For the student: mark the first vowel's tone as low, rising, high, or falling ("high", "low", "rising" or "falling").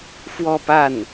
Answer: falling